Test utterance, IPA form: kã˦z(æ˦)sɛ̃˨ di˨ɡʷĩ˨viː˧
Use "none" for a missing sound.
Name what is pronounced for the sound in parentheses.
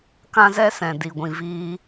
ɛ˦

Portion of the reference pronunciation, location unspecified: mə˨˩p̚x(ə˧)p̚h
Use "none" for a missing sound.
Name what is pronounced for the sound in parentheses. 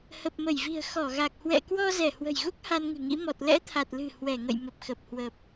ə˨˩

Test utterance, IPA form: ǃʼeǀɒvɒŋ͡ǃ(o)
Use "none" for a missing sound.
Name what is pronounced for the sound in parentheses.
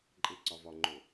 o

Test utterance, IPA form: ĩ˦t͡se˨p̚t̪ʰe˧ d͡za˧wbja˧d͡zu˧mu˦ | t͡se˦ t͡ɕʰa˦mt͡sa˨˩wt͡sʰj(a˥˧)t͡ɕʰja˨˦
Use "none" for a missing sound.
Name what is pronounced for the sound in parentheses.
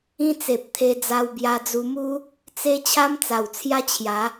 a˦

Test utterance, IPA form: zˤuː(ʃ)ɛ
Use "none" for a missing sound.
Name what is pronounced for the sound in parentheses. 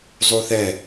θ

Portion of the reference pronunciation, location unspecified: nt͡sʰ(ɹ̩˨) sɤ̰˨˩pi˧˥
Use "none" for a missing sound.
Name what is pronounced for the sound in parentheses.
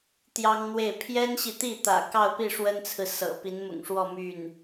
ɹ̩˨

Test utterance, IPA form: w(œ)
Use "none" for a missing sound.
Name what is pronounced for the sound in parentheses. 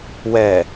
ɛ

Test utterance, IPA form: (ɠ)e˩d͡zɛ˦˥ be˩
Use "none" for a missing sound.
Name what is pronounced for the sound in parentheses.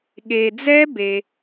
ɠ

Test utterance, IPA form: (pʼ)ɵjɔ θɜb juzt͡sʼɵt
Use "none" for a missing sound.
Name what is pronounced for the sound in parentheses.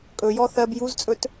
kʼ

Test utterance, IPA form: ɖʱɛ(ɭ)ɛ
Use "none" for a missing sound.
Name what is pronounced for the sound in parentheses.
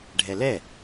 l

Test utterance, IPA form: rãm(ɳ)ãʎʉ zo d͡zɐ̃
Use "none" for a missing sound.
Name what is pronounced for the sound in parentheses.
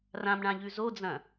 ɳ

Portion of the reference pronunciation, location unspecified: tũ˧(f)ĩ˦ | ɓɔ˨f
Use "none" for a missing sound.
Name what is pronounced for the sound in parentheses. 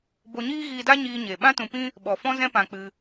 p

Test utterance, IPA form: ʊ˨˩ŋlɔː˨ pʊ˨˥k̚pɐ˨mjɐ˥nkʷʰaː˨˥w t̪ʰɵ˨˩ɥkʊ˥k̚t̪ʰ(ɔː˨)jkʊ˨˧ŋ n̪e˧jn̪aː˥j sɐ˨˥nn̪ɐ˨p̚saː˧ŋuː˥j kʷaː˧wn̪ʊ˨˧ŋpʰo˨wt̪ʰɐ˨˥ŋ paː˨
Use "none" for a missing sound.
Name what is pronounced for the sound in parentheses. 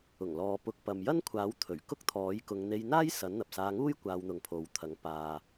ɔː˨˥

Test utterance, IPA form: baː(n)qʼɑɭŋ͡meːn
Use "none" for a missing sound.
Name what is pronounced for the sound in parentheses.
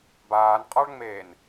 n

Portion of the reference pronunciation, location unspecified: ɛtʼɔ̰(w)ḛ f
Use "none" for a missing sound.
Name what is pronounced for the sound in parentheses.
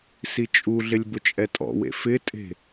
w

